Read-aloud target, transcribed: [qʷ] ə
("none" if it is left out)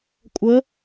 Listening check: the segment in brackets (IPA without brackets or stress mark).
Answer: kʷʼ